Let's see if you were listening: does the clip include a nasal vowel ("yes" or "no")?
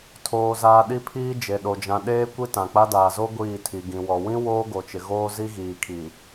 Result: yes